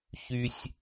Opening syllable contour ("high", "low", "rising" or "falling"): high